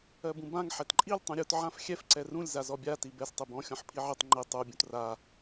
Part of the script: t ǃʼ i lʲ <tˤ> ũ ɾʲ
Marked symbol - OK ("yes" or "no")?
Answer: yes